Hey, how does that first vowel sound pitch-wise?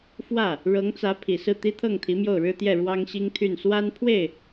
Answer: falling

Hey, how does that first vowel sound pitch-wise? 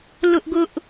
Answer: high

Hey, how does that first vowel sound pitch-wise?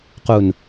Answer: low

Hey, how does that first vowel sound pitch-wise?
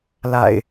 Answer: low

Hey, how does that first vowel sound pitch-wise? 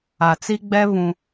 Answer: low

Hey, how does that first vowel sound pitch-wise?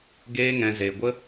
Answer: high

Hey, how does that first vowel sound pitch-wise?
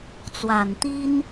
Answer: low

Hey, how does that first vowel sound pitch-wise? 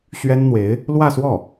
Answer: high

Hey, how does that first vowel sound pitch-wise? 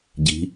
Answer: rising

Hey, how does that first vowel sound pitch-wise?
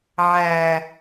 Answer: low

